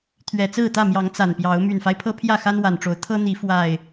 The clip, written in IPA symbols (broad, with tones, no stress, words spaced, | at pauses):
t̪ʰɥɛ˨˩t͡sɹ̩˥˨t̪ä˥˨mjɑ˨˦ŋ t͡sa˨˩npjɑ˨˦ʊ̯ my˨˩nfa˦ɪ̯pʰɤ˦ pʰjä˥˨xa˦n wa˨˩nʈ͡ʂo˨˦ʊ̯ t̪ʰɤ˦n̪i˨˦ fwa˨˩ɪ̯